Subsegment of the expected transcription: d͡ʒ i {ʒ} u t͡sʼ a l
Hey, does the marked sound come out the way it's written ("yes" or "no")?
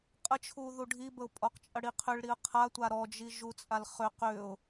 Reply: yes